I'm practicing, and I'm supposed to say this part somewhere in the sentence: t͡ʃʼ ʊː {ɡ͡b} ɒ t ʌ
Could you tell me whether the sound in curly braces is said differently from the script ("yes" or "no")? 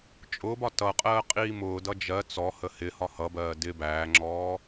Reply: yes